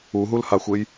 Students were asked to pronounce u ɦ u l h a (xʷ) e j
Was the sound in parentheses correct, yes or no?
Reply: yes